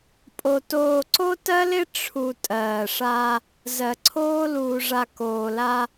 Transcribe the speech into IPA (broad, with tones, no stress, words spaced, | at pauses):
pʼo˨ toː˨ǀo˦tɜ˦lɪ˦ ʈ͡ʂʰu˨ tʼɜː˨ʂa˦ | zɜ˨ǀʰoː˦ luː˨ʐa˨ koː˨la˦